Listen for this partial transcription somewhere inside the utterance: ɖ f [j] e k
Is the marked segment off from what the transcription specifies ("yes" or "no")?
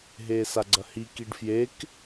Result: no